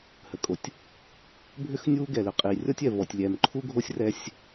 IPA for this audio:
h ə˨ kʼ o˨ tʲ | bʱ ʏ˦ x nʲ uː˦ ɡ ɛ˨ l ʏ˨ qʼ iː˨ rʲ ɔ˦ tʲ ɛ˨ v ɔ˨ tʲ lʲ ɛː˨ m ǃʰ u˦ ɡʱ o˦ sʲ r ɛ˦ sʲ

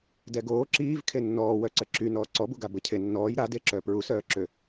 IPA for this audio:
d ɛ ɡ oː ǁ iː v kʰ e nː ɔː w œ ǀ ə ǁ y n ɔː ǀ ɔ b u ɡ a b ə cʰ e nː ɔː j ɾ a d e ǁ œ p ɹ u s œː ǁ ø

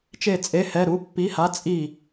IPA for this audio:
t͡ʃ e˥˩ t͡sʼ e˧˥˧ h ɛ˧˥˧ ɾ u˧˥˧ pː i˧˥˧ h a˧˥˧ t͡sʼ i˥˩

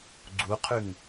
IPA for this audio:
ɡ͡ǀ u qʰ ʉ ŋ

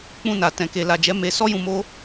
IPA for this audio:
k͡p ũ˧ n a˨ t ɛ̃˨ k e˨ l a˨ d͡ʒ ɛ˨˦ m e˧ s ɔ˦ j ũ˧ m o˦

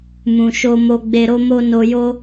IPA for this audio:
m ũ˨ ʃ o˧ m o˧ ɡ͡b e˧ ɾ o˦ m o˦ n o˧ j o˦

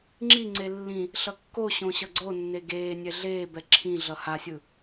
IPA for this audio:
ŋ͡ǁ i ŋ͡ǀ e lː ĩ | ɬ ʌ kː o ɕ õ ɕ ʌ ɡ͡ǀ o nː e ɡ eː nʲ ɛ ɮ eː b ɛ ǁʰ ĩ ɮ ʌ h a sʲ ɯ

